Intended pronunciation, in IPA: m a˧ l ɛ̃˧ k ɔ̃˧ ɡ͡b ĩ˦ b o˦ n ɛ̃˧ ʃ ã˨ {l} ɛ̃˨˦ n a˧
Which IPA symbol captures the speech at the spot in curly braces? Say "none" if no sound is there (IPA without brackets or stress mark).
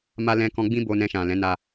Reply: l